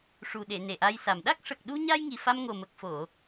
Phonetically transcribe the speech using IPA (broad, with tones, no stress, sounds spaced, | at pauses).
ʂ u˨˩ ɗ e˨˩˨ n e˨˩ ʔ a˧ j s a˨˩ m ɗ a˦˥ k̚ ʂ ə˨˩ k̚ ɗ u˧ ɲ a˧ j ŋ i˨˩ f a˧ m ŋ o˨˩ m ə˨˩ k̚ f o˨˩˨